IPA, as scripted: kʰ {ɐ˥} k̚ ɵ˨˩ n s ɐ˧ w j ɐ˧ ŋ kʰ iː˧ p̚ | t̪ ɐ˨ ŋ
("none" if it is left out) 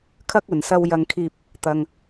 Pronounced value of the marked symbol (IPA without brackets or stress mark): ɐ˥